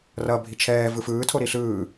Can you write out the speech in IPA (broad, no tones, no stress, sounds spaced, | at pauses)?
r ʌ bʱ i t͡ʃʰ ɛː v ɯ f ɯː tʰ o ɾ i ɬ ɯː